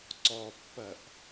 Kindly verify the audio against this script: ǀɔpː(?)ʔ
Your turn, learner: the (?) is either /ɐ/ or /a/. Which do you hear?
ɐ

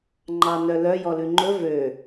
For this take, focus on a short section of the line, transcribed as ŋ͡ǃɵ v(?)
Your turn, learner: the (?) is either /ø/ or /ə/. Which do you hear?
ø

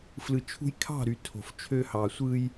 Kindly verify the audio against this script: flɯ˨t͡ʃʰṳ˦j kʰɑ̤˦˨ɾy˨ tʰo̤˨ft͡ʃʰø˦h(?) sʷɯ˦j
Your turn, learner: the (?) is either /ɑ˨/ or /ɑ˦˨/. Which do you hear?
ɑ˨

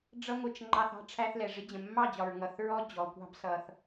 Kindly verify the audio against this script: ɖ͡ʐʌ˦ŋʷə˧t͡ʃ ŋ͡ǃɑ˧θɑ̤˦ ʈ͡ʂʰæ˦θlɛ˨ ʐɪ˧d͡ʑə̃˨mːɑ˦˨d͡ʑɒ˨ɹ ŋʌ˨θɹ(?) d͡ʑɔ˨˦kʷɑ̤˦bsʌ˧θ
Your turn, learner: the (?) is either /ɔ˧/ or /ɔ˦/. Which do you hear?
ɔ˦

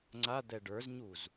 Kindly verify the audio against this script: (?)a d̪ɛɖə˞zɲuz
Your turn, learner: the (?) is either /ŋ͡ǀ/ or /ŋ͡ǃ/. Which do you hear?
ŋ͡ǀ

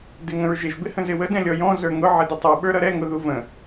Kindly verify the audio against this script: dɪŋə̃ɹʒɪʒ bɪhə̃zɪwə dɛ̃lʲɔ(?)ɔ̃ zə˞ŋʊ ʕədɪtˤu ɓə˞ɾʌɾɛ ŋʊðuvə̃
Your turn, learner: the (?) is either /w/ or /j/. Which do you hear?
j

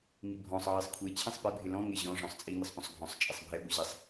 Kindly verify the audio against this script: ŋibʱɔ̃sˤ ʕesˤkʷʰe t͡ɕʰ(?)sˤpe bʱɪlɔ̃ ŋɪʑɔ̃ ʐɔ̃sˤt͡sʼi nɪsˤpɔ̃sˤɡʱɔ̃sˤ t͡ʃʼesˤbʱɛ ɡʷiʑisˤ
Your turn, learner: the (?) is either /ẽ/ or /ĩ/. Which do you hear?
ĩ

